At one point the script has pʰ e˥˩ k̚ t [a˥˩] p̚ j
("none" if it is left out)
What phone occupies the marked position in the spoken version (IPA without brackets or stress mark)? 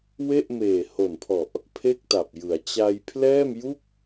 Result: a˨˩